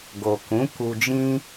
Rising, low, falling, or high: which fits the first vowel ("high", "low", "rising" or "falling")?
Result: low